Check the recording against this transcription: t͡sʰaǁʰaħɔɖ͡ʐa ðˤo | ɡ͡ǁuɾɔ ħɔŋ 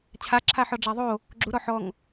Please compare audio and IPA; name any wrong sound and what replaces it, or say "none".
t͡sʰ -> t͡ɕʰ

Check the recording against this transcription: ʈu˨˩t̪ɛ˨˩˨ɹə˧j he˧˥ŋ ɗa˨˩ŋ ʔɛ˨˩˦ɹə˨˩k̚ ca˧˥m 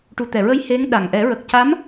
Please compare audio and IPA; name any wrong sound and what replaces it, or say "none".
none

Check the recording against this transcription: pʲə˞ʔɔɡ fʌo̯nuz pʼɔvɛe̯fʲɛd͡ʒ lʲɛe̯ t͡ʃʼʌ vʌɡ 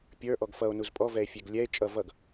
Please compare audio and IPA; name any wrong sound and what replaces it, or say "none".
d͡ʒ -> ɡ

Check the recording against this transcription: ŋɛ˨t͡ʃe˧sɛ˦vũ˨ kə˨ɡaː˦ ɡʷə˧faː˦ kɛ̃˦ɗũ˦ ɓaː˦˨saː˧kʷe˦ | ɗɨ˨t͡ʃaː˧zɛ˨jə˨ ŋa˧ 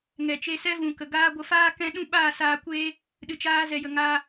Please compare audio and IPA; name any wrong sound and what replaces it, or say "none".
none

